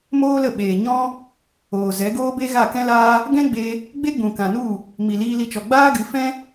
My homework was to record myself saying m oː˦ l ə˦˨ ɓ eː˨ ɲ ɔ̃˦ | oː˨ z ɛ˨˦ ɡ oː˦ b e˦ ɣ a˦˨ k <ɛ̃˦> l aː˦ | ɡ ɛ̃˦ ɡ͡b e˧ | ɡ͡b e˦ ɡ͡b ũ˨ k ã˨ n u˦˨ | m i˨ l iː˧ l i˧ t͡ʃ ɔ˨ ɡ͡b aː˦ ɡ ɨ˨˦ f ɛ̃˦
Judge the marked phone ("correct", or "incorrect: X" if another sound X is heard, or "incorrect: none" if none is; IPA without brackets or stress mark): correct